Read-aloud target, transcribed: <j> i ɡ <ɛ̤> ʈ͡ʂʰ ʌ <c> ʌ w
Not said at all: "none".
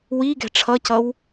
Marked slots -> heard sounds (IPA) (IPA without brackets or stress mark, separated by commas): w, ɛ̤, c